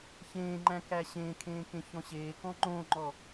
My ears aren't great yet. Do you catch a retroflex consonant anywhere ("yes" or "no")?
no